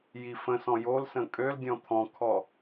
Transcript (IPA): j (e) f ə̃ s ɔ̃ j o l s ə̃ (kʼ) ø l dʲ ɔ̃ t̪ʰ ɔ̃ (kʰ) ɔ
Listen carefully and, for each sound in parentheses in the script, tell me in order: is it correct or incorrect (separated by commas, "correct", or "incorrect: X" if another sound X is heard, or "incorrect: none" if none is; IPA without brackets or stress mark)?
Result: incorrect: i, correct, correct